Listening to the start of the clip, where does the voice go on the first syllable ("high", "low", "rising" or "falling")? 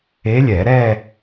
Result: rising